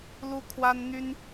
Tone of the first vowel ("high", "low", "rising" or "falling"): high